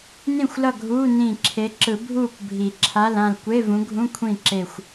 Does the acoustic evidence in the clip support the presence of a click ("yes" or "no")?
yes